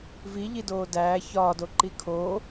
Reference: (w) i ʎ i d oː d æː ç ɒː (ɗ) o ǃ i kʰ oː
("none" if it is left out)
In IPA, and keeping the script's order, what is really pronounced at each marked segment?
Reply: v, d

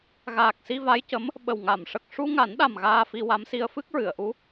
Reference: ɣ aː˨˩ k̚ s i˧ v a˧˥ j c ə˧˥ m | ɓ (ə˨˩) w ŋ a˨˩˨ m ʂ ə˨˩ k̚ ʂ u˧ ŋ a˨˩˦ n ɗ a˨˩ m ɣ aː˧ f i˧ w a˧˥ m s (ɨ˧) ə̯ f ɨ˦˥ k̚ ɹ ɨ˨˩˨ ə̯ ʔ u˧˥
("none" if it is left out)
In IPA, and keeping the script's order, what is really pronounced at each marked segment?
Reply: ə˨˩, i˧

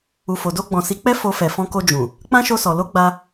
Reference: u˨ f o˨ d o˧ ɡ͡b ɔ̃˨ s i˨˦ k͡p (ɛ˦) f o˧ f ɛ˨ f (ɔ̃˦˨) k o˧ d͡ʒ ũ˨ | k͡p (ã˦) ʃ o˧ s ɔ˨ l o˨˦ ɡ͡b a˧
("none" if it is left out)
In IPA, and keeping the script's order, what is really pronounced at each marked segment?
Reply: ɛ˦, ɔ̃˧, ã˦

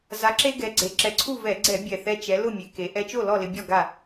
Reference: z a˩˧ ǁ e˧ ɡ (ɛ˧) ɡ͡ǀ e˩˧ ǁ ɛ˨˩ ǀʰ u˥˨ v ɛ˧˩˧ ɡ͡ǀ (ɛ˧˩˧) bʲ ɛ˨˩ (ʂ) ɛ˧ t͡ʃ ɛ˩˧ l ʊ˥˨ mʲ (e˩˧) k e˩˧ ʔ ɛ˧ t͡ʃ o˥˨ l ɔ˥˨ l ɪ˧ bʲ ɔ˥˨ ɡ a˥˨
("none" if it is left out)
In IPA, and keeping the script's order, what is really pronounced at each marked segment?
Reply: ɛ˩˧, ɛ˧˩˧, θ, e˩˧

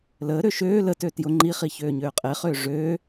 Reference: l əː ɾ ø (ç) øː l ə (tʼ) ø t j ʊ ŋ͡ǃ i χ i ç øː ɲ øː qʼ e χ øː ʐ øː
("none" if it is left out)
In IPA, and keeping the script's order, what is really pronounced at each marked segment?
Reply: ʃ, t

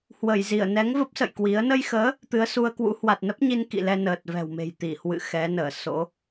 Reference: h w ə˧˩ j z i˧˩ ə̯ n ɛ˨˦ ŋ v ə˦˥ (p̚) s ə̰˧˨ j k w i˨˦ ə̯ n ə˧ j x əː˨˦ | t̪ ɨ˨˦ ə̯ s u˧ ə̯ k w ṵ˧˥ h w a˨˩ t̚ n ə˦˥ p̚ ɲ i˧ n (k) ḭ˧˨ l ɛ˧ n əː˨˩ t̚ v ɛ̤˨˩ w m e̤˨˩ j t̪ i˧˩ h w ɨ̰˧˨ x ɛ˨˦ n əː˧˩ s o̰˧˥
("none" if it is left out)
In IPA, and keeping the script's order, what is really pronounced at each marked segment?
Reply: p̚, k

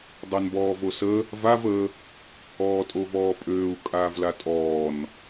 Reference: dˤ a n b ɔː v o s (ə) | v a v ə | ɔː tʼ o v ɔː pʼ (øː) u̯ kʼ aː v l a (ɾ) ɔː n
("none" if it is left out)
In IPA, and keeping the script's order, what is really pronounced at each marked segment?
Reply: ə, øː, tʼ

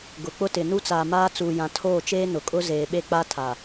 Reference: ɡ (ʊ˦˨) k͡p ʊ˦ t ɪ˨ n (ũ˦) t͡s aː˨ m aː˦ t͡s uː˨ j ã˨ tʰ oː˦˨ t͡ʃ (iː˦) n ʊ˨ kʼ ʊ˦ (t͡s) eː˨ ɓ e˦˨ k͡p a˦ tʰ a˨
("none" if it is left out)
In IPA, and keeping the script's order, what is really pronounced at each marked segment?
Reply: ʊ˨, u˦, eː˦, z

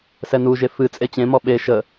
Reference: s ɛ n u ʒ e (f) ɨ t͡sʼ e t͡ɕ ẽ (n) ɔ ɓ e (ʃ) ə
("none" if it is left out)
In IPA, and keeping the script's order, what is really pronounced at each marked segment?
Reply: f, m, ʃ

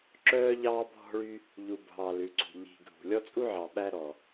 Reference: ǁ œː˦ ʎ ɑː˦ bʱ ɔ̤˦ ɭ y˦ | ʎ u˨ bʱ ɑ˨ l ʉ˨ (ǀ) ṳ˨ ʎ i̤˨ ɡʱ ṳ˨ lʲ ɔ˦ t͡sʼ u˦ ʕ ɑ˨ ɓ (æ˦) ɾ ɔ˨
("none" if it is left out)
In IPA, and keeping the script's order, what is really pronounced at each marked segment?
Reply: ǀ, æ˦

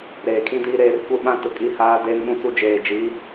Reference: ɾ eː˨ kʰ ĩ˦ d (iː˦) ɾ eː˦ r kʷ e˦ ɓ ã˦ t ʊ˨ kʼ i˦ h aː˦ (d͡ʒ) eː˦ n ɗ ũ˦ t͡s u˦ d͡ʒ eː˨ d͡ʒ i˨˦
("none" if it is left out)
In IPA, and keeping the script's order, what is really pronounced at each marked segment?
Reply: iː˦, d

